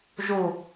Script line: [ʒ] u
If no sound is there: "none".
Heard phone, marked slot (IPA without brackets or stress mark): ʒ